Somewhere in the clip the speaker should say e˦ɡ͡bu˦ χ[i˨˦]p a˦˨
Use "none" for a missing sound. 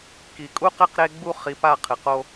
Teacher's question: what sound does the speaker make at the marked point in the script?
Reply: i˨˦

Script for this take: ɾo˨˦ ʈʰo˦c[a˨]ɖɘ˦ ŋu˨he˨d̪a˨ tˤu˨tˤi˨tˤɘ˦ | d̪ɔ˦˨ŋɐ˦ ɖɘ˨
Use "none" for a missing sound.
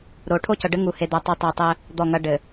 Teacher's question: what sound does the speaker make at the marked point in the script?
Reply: ɐ˨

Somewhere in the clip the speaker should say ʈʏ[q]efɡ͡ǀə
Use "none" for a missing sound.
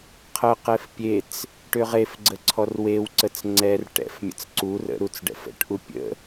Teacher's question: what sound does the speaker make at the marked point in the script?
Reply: ʁ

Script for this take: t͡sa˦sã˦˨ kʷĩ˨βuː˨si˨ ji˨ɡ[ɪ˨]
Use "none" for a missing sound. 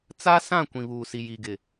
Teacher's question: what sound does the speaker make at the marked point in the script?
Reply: ɪ˨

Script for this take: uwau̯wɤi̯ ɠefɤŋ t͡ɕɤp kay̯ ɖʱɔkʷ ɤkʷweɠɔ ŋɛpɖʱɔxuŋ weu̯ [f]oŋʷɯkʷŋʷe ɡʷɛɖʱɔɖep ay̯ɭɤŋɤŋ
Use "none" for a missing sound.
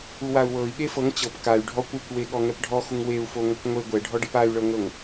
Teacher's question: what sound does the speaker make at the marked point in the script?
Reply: f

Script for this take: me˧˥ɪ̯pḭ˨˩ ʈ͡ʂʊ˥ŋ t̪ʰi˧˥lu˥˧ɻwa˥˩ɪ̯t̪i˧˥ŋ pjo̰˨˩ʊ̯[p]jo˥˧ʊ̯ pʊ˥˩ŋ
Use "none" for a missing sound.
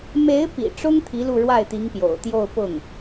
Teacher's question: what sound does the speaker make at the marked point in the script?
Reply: t̪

